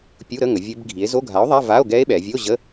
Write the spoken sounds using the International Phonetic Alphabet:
pʲ u˧˥˧ ɾ ə˧˥˧ ŋ ə˩˧ vʲ ɘ˦˥ b ɡʱ i˨˥ e̯ z o˧˥˧ ɡʱ a˨˥ o̯ ðˤ a˧˥˧ v a˧˥˧ o̯ ɡ ɛ˦˥ e̯ ɓ ɛ˩˧ vʲ ə˧˥˧ o̯ ʑ ə˧˥˧

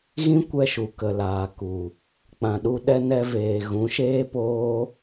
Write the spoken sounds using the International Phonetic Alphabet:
ɣ ĩ˦ kʷ ɛ˧ ʃ u˨ k ə˨ l aː˨ k u˨ | k͡p ã˨ ɗ u˧ ɗ ɛ˧ n ɛ˧ v eː˨ ɣ ũ˨˦ ʃ eː˦ p oː˦

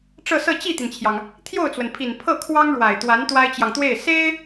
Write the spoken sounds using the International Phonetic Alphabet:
ʈ͡ʂ ɤ˥˧ s ɤ˥˧ t͡ɕ i˥˩ t̪ i˩ n t͡ɕʰ j ɑ˩ ŋ | t̪ʰ j o˥˩ ʊ̯ t͡s w ə˩ n pʰ i˨˩ n pʰ ɤ˥˩ kʰ w ɑ˥ ŋ ɻ w a˨˩ ɪ̯ t̪ w a˧˥ n t̪ w a˥ ɪ̯ t͡ɕ j ɑ˨ ŋ t̪ w e˥˩ ɪ̯ s e˥ ɪ̯

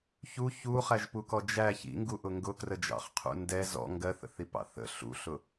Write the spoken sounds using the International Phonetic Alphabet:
ç u ç u χ æ ʒ p u k ɔ d͡ʒ æ ç ḭ ŋ ɡ u ʔ ʊ ŋ ɡ ʊ k r ə d͡ʒ ɑ̰ χ qʰ ṵ n d ɛ z ɔ̰ ŋ ɡ ɜ θ ə̰ θ i p ɑ̰ θ ə̰ ɬ ṵ ɬ ʊ

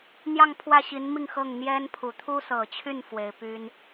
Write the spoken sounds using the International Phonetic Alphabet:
n̪ j ɑ˥˧ ŋ pʰ w ä˥˩ ɕ i˧˥ n m i˥˧ ŋ x ɤ˥˩ ŋ n̪ j ɛ˥ n pʰ u˨˩ t̪ʰ u˥ s ɤ˨˩ t͡ɕʰ y˥˩ n f w e˧˥ ɪ̯ p y˥ n

